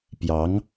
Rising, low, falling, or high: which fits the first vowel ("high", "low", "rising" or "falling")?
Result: rising